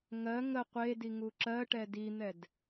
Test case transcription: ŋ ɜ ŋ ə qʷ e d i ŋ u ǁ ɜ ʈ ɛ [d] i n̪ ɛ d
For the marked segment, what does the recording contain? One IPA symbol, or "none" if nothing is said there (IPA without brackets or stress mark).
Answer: d